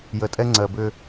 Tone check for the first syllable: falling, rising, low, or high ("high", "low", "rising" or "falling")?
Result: low